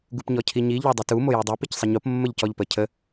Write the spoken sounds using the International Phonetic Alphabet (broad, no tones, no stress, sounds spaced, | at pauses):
ɡ u p ɲ ɔ cʰ i ɲ i ʎ ɔ dˤ u t u m o j o dˤ o p i c sˤ ə ɲ o p mː ə ʎ c ɔ ʎ p ə cʰ ə